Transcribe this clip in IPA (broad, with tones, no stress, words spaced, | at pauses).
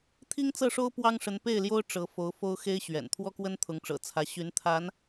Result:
t̪ʰi˥ŋt͡sɤ˥˩ʂo˥ʊ̯ pwɑ˥ŋʂə˧˥npe˥˩ɪ̯ljo˥ʊ̯ ʈ͡ʂɤ˧˥fo˧˥ʊ̯ fo˥ʊ̯xe˥ɪ̯ ɕɥɛ̰˨˩n t̪ʰwɔ˥kwə˥n t̪ʰʊ˧˥ŋʈ͡ʂɤ̰˨˩t͡sʰä˧˥ɕy˧˥n t̪ʰa˧˥n